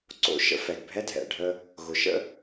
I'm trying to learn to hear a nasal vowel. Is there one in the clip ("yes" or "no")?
no